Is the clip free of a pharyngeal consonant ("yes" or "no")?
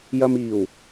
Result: yes